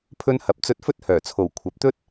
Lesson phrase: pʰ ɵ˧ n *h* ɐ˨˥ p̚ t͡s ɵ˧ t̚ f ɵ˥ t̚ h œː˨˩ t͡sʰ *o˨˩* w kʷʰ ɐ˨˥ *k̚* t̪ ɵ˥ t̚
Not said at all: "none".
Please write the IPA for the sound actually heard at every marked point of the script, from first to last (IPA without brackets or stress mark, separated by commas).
h, o˨˩, p̚